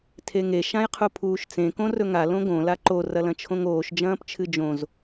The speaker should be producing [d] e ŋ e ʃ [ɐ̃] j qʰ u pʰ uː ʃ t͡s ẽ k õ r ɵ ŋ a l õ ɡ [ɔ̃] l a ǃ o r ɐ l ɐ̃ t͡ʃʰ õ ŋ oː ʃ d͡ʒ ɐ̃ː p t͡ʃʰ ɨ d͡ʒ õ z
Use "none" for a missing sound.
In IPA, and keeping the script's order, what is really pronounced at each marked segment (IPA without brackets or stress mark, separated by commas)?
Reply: tʰ, ã, õ